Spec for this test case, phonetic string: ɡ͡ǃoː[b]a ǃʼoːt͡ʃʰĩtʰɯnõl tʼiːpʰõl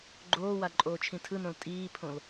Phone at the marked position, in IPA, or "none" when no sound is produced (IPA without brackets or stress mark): w